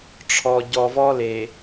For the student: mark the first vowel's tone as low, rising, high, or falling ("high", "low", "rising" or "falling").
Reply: low